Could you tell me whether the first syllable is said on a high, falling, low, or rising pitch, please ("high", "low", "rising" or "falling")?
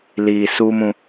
low